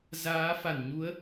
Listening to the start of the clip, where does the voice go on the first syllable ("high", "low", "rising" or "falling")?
rising